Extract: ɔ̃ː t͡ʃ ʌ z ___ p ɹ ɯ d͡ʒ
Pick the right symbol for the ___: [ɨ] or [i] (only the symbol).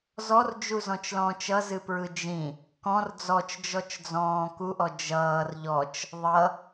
ɨ